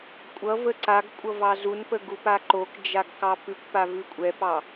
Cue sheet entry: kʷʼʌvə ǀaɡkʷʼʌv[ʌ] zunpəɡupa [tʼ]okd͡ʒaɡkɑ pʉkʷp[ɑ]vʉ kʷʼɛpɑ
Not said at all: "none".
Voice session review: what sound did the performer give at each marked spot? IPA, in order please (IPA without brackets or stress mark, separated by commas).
ɑ, ǃ, a